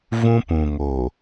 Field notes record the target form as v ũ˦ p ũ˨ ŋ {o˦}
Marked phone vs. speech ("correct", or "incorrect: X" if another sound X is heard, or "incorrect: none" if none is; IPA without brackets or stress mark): incorrect: o˨